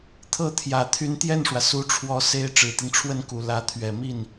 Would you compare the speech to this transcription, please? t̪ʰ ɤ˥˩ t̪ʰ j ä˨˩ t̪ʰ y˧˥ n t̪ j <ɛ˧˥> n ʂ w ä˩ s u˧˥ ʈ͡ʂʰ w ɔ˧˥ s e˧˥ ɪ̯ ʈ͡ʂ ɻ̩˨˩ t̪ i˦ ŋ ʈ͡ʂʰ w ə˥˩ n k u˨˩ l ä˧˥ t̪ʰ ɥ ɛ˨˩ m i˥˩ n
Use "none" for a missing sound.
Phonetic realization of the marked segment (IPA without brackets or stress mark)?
ɛ˥˩